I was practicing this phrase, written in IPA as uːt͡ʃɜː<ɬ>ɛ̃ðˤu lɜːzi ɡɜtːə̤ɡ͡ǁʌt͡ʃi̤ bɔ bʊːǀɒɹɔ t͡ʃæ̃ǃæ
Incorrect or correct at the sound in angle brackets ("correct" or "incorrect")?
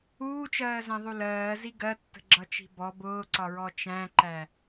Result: incorrect